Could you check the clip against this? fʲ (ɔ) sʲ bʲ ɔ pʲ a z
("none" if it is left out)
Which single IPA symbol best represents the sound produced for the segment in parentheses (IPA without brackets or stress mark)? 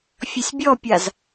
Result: ɔ